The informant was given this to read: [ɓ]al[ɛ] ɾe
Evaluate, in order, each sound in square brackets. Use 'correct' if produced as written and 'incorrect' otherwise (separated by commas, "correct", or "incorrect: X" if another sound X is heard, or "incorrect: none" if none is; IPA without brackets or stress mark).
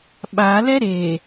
correct, correct